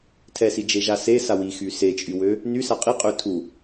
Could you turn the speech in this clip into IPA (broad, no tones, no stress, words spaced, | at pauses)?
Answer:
tʰɛsid͡ʒeʒa sesawixy set͡ʃʼywø | nysa qʼiqʼø tʰu